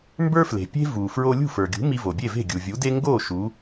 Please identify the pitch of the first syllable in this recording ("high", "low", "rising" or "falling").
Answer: high